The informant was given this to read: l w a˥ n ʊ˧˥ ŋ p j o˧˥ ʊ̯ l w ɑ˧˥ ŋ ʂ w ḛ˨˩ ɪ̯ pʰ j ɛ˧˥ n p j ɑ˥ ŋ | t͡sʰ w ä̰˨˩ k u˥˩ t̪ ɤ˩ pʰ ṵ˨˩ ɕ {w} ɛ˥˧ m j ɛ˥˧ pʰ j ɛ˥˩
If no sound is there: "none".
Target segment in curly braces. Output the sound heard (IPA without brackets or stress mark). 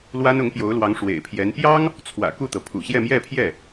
j